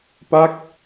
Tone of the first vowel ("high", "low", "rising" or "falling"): falling